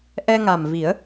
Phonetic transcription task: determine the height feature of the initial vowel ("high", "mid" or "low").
mid